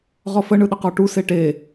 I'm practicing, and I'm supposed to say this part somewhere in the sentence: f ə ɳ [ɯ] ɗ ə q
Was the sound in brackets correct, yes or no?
yes